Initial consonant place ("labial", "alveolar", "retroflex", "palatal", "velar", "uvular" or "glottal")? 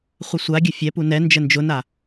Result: uvular